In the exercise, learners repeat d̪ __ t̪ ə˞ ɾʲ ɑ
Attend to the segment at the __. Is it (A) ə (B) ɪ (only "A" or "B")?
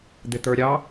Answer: B